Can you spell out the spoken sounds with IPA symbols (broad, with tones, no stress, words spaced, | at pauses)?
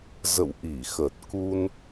zə̰˧˨w ʔi˧˩xə˨˩t̚ ku˧n